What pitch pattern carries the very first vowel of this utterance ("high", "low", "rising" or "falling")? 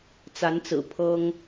rising